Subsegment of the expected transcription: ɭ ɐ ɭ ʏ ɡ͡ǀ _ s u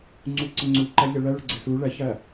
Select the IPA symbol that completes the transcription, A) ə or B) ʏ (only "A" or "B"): A